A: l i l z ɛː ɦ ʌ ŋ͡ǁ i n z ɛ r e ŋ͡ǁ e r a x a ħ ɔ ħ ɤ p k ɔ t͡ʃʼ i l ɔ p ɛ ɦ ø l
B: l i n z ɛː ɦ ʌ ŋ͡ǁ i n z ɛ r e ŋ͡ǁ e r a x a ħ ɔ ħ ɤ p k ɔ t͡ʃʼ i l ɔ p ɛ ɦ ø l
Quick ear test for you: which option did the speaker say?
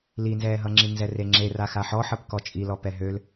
B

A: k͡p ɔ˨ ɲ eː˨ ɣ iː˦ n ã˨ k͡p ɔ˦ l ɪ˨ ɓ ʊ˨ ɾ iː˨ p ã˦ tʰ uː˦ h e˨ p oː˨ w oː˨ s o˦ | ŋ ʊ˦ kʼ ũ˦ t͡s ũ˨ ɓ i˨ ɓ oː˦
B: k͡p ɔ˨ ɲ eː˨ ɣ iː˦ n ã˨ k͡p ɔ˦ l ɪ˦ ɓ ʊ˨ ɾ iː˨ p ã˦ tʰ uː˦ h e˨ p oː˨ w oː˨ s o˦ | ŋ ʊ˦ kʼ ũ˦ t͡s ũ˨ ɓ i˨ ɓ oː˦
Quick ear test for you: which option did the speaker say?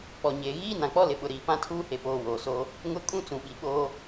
A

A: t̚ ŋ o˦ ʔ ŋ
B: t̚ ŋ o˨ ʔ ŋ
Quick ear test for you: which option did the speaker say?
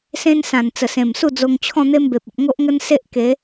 A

